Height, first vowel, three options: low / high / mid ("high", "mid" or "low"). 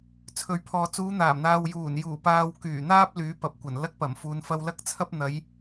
mid